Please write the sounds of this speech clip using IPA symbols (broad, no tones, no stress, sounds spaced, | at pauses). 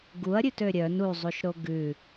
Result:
ɡ u ɐ̯ ɾʲ ʉ t ø ɾʲ œ n u zˤ u ʃ ɾ o ɡ ʉ